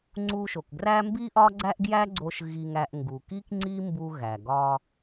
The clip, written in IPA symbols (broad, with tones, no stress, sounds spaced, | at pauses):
ŋ͡ǀ u˧ ʃ o˩ k ɡ r æ˥ m b i˥ ʔ ɒ˥ ɡ͡ǀ æ˥ ʔ ɡ j æ˥ ɡ͡ǀ o˧ ʃ ɣ i˧ ŋ æ˧ ʔ ŋ ɡ u˩ k i˥ k ŋ͡ǀ i˥ m b u˧ ɣ æ˩ ɡ ɒ˧